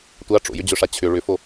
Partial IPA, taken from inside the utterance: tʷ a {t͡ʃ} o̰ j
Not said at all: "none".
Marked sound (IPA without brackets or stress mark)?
ʈ͡ʂ